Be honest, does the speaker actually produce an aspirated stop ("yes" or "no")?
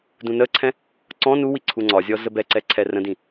yes